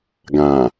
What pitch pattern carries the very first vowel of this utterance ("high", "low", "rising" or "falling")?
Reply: low